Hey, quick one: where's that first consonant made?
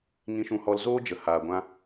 velum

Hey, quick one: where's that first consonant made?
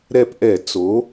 tongue tip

